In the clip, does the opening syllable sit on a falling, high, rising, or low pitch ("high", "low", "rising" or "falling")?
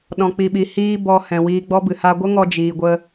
low